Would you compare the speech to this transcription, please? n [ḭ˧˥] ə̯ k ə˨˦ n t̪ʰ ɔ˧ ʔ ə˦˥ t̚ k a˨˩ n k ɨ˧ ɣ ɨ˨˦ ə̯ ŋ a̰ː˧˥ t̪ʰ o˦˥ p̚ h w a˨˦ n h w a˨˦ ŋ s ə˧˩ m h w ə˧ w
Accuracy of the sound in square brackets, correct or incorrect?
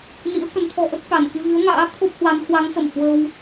correct